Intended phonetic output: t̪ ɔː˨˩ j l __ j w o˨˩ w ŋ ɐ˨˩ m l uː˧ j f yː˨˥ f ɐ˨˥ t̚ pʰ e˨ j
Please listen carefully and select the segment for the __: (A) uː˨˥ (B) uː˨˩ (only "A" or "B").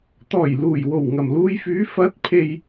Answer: B